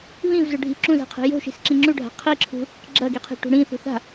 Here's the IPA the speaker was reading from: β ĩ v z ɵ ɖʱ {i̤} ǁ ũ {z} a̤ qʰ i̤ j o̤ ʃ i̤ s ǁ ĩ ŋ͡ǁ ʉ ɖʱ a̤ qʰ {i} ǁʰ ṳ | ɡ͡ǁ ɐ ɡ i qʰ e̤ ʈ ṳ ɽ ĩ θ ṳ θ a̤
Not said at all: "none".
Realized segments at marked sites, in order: i̤, z, i

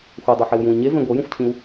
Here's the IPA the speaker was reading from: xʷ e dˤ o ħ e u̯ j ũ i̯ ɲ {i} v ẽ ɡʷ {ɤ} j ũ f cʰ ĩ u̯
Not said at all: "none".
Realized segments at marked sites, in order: e, ɤ

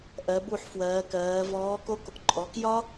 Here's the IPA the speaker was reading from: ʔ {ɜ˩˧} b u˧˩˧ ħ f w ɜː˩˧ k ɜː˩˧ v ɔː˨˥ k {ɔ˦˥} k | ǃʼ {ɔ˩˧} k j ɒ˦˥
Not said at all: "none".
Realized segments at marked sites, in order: ɜ˩˧, o˦˥, ɔ˩˧

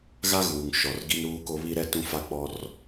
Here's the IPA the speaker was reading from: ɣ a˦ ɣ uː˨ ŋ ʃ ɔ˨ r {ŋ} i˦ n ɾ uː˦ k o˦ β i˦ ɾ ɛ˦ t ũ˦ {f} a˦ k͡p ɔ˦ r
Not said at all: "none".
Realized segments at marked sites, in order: ɡ, f

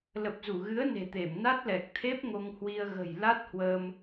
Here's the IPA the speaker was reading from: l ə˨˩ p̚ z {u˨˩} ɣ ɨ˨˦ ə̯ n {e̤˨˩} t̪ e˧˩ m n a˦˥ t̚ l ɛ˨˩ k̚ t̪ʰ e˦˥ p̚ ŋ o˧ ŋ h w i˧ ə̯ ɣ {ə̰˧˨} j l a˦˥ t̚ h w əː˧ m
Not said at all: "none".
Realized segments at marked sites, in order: u˧˩, e̤˨˩, ə̤˨˩

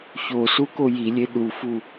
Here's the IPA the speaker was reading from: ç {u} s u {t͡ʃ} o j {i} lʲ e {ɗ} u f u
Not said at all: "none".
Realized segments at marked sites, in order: o, k, i, ɗ

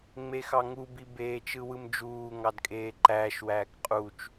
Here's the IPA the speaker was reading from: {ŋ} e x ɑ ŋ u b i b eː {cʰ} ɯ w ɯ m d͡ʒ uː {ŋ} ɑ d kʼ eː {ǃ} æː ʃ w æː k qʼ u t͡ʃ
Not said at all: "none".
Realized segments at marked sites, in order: ŋ͡m, t͡ʃ, ŋ, ǃ

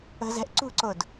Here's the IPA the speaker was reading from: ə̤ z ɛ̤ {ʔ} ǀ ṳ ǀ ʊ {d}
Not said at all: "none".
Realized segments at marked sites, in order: ʔ, d

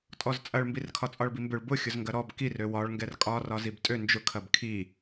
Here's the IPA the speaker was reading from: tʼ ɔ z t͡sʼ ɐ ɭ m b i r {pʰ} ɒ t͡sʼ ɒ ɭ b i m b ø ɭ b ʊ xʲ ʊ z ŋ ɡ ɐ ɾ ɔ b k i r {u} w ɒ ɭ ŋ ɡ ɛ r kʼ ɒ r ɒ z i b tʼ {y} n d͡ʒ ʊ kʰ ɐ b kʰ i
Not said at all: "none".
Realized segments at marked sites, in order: kʰ, ø, ø

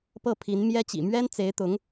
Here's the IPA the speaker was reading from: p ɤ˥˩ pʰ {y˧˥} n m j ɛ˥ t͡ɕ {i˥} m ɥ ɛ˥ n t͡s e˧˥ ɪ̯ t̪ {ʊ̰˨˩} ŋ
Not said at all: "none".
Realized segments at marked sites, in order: i˧˥, ḭ˨˩, ʊ˧˥

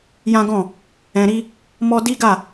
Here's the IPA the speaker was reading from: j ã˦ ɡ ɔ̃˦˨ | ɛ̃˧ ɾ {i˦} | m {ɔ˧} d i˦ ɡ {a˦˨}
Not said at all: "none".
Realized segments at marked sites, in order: i˦, ɔ˦, a˦˨

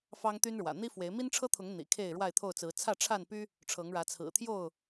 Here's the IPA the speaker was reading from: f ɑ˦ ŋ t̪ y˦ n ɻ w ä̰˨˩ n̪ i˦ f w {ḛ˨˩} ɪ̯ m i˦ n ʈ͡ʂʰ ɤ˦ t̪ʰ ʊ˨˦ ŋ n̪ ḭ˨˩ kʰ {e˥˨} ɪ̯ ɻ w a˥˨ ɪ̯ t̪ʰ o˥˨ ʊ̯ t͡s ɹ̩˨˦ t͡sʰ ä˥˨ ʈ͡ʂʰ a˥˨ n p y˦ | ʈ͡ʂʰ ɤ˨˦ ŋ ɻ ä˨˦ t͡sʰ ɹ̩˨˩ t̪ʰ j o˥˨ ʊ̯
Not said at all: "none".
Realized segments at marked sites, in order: e˨˦, e˥˨

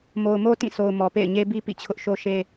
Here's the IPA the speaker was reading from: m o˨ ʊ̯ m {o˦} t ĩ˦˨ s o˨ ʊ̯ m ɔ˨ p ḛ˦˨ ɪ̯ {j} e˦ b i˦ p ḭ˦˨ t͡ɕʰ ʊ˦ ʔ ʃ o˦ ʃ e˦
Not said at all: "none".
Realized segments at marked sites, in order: o˦, ɲ

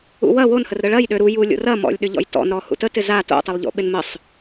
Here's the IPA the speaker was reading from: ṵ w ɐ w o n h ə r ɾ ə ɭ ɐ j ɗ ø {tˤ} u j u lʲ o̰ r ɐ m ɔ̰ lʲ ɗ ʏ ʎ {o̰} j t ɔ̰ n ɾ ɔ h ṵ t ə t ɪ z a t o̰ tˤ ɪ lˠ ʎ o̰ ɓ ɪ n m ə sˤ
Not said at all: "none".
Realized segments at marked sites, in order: ɾ, ɔ̰

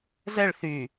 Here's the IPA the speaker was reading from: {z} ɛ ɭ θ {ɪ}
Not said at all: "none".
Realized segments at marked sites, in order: z, y

